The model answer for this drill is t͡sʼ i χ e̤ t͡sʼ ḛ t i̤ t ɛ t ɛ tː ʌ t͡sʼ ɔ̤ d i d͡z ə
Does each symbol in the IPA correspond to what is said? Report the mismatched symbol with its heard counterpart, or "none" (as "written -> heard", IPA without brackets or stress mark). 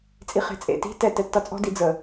none